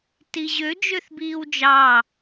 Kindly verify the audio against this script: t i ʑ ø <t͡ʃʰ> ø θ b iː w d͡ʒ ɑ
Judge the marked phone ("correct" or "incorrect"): incorrect